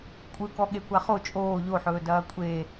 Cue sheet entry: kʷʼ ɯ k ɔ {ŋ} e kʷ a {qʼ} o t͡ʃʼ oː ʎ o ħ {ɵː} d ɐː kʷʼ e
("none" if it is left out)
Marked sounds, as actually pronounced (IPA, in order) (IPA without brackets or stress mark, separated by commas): ɠ, χ, ɵː